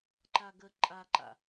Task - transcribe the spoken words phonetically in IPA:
ǃ a ɡ ə ǃʼ a ǃ a̰

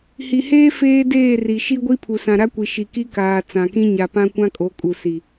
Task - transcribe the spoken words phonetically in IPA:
h i˨ h eː˦ f eː˦ d eː˦˨ r i˨ ʃ i˦ ɡʷ i˦ pʰ u˨ s ã˨ ɾ a˦ kʷ i˨ ʃ i˨ k i˦ k aː˨ t͡s ã˨ k ĩ˦ ɲ a˨ p ã˦ kʷ ã˦ kʼ o˨˦ kʼ u˨ s i˨

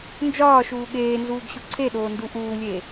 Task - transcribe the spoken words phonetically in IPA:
n d͡ʒ ɒː ʃ uː ɠ eː n z uː ɡ ɕ u ǀʰ e ɗ oː n d u ʔ uː lʲ e

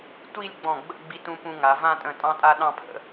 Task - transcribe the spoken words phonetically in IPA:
tʷ i˥˧ lʲ ɡ͡b ɔ̃˧˩ ɡ͡b ə̰˥˧ ɡ͡b i˧ t ũ˧ p ũ˧ ŋ a˩˧ v ã˥˧ tʼ ə̃˧˩ tʼ ɑ̃˥ tʼ a˥ ɗ ɑ̃˥˧ pʰ ə̰˩˧

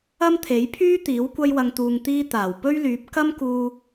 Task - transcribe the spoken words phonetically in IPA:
ɐ˥ m t̪ʰ e˨˥ j pʰ yː˥ t̪ iː˨˥ w kʷ ɐ˧ j w ɐ˨ ŋ t̪ uː˨ ŋ t̪ iː˧ t̪ aː˨˩ w p ɵ˥ ɥ l yː˨˥ p̚ k ɐ˥ m k uː˧

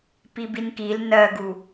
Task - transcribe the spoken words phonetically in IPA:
p i b i n k i l n ɜ ɡ u

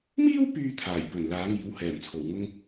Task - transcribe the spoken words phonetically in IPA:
m iː˥ w p yː˥ t̪ʰ aː˨˩ j p ɵ˨˩ n l aː˨˥ ŋ iː˨˥ w h ɛː˨˩ m t͡sʰ o˨˩ w ŋ ʊ˥ ŋ

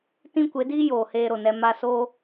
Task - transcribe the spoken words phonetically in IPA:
t ĩ˦ kʷ e˨˦ d iː˦ j oː˨ h eː˧ ɾ o˨ n ɛ˧ m a˧ s o˦

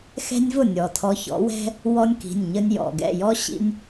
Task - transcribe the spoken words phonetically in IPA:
x ɛ̤˦ nʲ v ʊ˥˩ nʲ ɔ˩ tʰ ɔ˨˦ ç ɔ̰˨˦ w ɛ̤˦ | w ɔ˦ nʲ k i̤˩˧˩ nʲ ɲ ə˦ nʲ j ɔ̰˩˧˩ ɡ ɛ̰˥˩ j ɔ˦ ɕ ḭ˦ nʲ

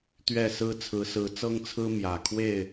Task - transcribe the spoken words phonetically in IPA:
t̪ ɥ ɛ˥˨ s ɹ̩˦ t͡sʰ ɹ̩˨˦ s ɹ̩˨˦ t͡s ɤ˦ ŋ t͡sʰ ɹ̩˦ m j ä˨˩ kʰ w e˥˨ ɪ̯

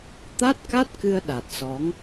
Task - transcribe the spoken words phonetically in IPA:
t̪ a˦˥ t̚ k a˦˥ t̚ k ɨ˧ ə̯ ɗ a˨˩ t̚ s ɔ˨˦ ŋ

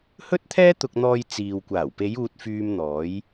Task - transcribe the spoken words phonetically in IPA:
h ɵ˥ t̚ t̪ʰ ɛː˥ t̪ ʊ˧ k̚ n̪ ɔː˧ j t͡s iː˨ w kʷ aː˨˩ w p e˨˧ j uː˧ t̚ f yː˧ m n̪ ɔː˨˥ j

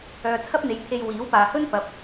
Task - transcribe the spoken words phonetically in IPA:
œː˨ t͡sʰ ɐ˥ p̚ n̪ e˨˧ j pʰ e˧ j w iː˨˥ w p aː˨ h ɵ˥ n p ɐ˨˥ p̚

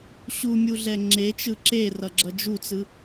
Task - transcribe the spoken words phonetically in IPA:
ɕ u mʲ u ɮ ɛ ŋ͡ǁ e t͡ʃ ɯ ǁ e r ʌ ɡ͡ǁ ʌ d͡ʒ u t͡s ɯ

